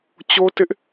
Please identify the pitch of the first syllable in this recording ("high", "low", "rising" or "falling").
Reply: high